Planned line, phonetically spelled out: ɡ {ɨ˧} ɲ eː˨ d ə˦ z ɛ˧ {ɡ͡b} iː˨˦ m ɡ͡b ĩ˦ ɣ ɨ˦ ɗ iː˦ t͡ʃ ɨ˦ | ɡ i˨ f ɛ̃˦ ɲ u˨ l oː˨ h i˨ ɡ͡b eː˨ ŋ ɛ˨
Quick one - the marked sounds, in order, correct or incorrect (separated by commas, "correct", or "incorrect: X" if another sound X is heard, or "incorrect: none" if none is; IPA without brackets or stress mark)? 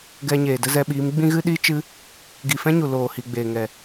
incorrect: ɛ˧, incorrect: ɓ